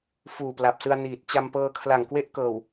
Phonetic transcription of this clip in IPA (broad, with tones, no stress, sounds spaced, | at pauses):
f uː˨˩ p l a˨˩ p̚ s ɯ˧ a̯ n iː˨˩ t̚ t͡ɕ a˧ m p ɤː˧ kʰ l a˨˩ ŋ k w e˥˩ ʔ k ɤː˨˩ w